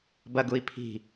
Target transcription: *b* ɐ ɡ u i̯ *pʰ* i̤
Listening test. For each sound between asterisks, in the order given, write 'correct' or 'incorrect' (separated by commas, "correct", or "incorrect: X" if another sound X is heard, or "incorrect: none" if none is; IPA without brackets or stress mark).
correct, correct